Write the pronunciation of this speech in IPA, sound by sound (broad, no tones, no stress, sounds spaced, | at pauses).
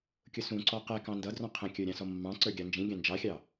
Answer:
kʲ ʊ s ũ ǀ ɔ q ɛ k ɑ̃ n d ʌ d r ɔ̃ qʰ ə̃ kʲ ə˞ ɾʲ ɑ̃ s ɔ mː ɑ̃ ǀ ə˞ ɡʲ ɑ n d͡ʒ ĩ ɡʲ ɑ̃ n d͡ʒ ɑ xʲ ɑ